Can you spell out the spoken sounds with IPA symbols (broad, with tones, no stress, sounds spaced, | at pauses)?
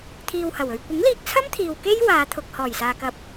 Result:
t̪ʰ iː˧ w h ɐ˨˩ w ɵ˧ ɥ kʷ ɪ˨˥ ŋ l iː˧ k̚ t͡sʰ ɐ˥ m t̪ʰ iː˨ w k e˥ j w aː˨˧ t̪ʰ ʊ˨ k̚ h ɔː˨˩ j s aː˨ k ɐ˨˥ p̚